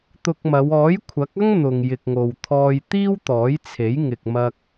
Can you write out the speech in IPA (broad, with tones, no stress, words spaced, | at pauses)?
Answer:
t̪ʊ˧k̚mɐ˨˧w ɔː˨˥jkʷʰɐ˨˥k̚ɐ˥ŋ n̪ʊ˨ŋ jɪ˨k̚ŋo˨w t̪ʰɔː˧j t̪iː˥wt̪ɔː˨˥jt͡sʰe˨˥j ŋɪ˨k̚ mɐ˧k̚